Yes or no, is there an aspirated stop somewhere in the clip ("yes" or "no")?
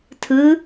yes